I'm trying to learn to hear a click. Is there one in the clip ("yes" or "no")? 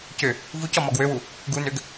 no